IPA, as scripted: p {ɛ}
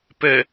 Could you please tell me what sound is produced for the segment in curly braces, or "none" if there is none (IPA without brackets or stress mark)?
ɛ